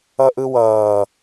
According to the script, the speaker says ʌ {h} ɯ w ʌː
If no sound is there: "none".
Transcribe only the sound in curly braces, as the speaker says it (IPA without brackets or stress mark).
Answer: ʔ